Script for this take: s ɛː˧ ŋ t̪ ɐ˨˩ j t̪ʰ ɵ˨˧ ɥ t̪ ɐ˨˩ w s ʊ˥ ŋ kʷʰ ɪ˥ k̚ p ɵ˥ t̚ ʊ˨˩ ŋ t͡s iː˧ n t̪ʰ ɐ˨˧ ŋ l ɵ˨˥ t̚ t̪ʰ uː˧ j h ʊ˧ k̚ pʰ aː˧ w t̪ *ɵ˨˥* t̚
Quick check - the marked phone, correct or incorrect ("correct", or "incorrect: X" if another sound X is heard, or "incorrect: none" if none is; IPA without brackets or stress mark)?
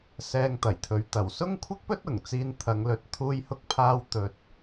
incorrect: ɵ˧